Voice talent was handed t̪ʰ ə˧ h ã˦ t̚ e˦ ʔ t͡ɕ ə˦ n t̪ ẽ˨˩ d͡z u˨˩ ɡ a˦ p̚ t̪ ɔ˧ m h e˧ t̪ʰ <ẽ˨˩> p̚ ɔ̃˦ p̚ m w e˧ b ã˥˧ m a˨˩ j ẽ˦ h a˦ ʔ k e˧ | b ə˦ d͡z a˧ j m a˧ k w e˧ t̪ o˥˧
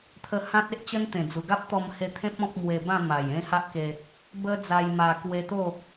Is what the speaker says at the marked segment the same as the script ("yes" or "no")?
no